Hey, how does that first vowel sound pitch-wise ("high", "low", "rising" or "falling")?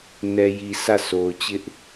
low